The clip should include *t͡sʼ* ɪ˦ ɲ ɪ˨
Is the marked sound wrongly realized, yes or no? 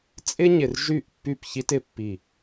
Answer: no